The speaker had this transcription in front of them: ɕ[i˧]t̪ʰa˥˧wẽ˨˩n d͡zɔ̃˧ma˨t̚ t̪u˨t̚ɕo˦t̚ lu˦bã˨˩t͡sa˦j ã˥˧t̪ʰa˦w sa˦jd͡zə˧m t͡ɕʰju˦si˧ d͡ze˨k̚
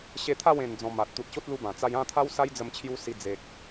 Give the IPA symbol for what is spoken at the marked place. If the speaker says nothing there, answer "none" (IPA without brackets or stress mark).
e˧